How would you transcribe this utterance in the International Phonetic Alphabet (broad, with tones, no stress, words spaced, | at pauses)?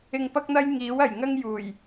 ɪ˧ŋpɐ˥k̚n̪ɐ˥j ŋiː˨˥wɐ˨˩jŋɐ˥ŋ juː˨˩j